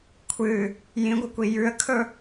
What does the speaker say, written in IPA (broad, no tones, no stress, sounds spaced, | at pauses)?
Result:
kʷʰ ɨ | j ĩ ɡʷ ɨ kʷ i j ʉ ə̯ kʰ ɵ